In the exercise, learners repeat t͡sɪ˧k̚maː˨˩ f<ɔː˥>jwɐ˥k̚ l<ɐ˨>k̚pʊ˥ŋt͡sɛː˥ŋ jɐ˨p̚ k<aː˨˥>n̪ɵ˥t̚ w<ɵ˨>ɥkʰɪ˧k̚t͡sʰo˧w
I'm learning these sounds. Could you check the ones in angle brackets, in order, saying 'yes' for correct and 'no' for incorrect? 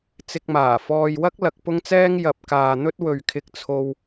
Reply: no, no, no, yes

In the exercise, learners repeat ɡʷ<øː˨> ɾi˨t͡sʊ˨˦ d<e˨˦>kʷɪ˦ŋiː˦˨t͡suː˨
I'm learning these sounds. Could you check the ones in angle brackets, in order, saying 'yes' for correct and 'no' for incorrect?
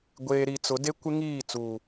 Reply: no, no

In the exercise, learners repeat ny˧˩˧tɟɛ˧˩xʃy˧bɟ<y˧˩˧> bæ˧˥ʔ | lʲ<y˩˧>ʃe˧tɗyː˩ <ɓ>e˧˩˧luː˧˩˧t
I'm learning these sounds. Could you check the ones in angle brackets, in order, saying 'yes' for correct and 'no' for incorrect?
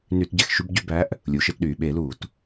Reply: no, no, yes

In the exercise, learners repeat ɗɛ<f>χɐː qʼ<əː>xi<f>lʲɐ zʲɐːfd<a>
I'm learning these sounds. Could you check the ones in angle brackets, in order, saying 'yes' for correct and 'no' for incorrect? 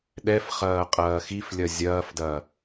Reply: yes, no, yes, no

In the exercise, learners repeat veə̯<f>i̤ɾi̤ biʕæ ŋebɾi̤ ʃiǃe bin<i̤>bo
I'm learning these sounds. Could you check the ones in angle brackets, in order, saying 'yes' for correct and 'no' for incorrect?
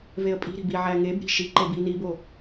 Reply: no, no

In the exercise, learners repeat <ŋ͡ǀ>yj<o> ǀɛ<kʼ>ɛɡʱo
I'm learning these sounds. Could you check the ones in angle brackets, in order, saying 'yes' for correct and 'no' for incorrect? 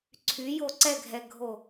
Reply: no, yes, no

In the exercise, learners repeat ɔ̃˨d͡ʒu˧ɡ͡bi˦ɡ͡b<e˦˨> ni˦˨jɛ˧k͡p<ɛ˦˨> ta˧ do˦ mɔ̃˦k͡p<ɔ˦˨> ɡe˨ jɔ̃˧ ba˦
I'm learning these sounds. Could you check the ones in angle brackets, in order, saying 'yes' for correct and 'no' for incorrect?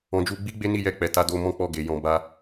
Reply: no, no, yes

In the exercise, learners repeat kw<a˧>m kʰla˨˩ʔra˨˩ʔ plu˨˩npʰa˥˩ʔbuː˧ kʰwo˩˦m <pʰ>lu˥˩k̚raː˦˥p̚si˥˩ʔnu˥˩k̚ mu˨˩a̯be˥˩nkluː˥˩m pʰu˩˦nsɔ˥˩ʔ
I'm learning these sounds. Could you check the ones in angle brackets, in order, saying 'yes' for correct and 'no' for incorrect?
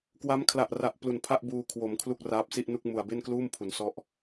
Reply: no, no

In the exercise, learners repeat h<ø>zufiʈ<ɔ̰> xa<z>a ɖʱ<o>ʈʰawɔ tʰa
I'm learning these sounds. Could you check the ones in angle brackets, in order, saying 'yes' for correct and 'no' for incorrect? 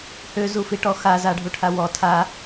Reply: yes, no, yes, no

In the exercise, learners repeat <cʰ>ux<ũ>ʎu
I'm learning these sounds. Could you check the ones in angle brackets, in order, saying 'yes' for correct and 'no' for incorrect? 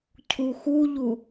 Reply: yes, no

